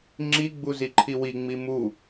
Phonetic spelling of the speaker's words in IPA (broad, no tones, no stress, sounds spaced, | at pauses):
ŋ͡ǁ i ɡ͡b u z i ǃʰ i w i ŋ͡m i m u